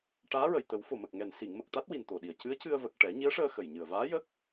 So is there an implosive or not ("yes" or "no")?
yes